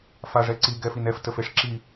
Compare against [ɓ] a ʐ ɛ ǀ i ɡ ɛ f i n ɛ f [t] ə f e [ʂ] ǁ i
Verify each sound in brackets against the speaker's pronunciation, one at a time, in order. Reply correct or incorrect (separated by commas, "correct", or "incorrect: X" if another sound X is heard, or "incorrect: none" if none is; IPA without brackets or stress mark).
incorrect: f, correct, correct